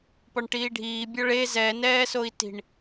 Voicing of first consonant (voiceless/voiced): voiceless